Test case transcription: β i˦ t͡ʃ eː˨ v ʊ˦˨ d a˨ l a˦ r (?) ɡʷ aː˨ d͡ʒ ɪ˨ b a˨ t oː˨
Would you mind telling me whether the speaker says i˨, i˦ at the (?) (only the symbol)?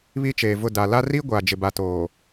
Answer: i˦